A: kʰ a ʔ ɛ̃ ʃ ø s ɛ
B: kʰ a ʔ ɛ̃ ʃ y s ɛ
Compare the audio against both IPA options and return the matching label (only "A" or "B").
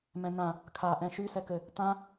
B